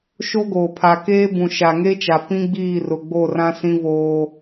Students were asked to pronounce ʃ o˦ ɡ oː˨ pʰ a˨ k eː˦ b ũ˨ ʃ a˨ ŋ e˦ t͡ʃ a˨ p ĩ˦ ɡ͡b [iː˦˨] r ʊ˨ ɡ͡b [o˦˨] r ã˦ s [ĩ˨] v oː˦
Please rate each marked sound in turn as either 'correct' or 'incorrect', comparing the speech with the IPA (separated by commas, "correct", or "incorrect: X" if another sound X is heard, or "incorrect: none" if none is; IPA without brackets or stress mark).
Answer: correct, correct, incorrect: ĩ˦